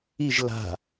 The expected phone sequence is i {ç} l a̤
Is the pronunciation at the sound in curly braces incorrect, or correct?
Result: incorrect